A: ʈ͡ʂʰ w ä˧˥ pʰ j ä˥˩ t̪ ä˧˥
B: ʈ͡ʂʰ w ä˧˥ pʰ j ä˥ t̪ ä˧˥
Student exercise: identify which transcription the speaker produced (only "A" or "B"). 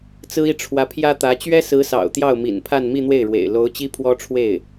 B